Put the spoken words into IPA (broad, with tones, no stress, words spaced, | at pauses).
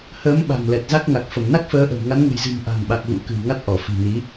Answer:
həː˨˦mɓa̤˨˩ŋlɛ˨˩t̚ za˦˥k̚ŋa˨˩k̚fə˧˩m na˦˥k̚fəː˨˦ʔə̤˨˩w ŋa˨˦nŋə̤˨˩jzɨ̤˨˩m ʔa̤˨˩ŋɓa˨˩k̚ ɣṵ˧˥kɨ̤˨˩wŋa˦˥t̚ ʔɔ˧˩fi̤˨˩ni˨˦